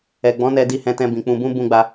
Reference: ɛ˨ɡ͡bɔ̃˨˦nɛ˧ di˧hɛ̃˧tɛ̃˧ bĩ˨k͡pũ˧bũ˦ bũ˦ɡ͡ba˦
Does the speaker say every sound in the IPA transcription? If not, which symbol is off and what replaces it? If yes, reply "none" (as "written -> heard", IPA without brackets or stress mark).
none